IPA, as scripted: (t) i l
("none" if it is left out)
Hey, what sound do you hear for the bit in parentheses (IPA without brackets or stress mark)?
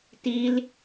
t